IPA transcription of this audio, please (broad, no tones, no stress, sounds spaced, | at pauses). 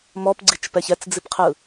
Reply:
m ɔ p ɡ͡ǀ i t͡ʃ p ɛ ç ɛ t͡s d͡z i p qʰ ɯ